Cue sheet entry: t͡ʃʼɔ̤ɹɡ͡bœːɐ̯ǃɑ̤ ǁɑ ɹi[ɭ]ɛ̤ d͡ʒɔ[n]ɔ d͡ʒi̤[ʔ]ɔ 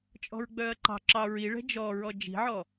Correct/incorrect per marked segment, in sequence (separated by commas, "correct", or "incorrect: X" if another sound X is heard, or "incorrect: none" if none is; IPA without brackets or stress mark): correct, incorrect: ɹ, incorrect: ʕ